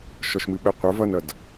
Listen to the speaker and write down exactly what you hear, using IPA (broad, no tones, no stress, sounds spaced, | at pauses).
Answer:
ʃ ɔ ʃ m ɨ ɓ ɛ qʷ ə˞ v ʌ n ʌ d